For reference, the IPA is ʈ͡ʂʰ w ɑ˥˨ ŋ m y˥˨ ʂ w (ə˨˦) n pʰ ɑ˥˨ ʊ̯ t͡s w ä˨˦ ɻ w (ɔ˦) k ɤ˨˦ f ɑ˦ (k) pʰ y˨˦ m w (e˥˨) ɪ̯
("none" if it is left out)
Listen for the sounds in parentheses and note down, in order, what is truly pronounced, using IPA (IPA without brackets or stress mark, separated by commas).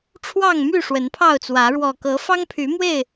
ə˨˦, ɔ˨˩, ŋ, e˥˨